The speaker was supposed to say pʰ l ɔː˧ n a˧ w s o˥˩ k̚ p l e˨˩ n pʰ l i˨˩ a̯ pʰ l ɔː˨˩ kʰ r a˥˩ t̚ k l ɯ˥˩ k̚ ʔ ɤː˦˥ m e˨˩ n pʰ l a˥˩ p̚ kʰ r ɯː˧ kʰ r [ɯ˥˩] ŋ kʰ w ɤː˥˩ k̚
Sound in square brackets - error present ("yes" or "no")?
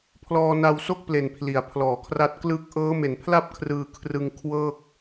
yes